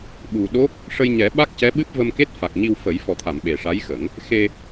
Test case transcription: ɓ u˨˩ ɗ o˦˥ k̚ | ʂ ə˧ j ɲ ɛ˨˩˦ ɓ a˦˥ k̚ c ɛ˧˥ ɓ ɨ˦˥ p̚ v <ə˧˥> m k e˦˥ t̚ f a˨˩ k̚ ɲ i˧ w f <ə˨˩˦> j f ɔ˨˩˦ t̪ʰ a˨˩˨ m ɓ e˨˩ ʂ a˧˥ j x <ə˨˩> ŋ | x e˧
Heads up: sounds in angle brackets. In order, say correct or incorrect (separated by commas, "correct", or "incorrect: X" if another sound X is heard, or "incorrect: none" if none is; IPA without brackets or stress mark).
incorrect: ə˧, correct, incorrect: ə˨˩˦